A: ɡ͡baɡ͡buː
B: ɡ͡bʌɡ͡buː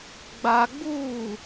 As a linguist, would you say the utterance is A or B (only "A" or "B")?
A